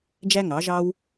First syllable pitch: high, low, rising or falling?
high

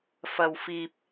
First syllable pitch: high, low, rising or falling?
low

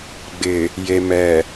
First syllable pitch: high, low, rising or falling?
low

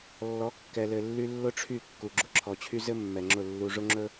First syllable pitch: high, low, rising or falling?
rising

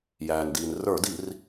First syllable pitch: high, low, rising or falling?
low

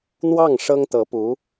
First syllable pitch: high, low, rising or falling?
falling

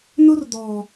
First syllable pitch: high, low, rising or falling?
high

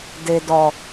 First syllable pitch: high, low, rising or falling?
low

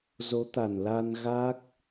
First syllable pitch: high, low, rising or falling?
rising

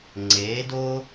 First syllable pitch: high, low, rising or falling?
rising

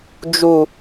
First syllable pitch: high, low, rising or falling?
low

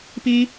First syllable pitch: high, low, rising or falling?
high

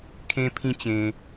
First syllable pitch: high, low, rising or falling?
high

